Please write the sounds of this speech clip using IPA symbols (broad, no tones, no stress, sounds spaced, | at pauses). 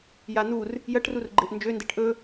j a n̪ u r | j ɐ ʈ r u r ɡ͡ǃ e ʔ n d͡ʒ ø n d e ʈ ʔ ɵ